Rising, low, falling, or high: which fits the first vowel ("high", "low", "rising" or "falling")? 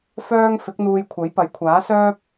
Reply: high